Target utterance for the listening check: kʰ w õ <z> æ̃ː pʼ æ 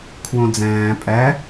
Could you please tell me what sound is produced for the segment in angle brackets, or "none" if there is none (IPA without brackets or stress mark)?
d͡z